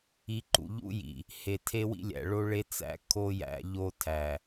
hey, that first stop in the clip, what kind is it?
click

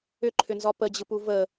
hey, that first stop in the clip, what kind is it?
click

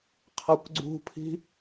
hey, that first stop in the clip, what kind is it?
aspirated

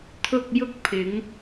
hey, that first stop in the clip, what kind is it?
aspirated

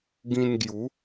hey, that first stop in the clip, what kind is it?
plain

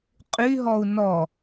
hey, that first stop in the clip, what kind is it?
ejective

